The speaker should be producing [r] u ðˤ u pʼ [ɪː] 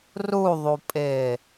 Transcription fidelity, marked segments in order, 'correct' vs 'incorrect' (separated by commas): correct, correct